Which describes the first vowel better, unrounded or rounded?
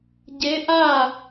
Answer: unrounded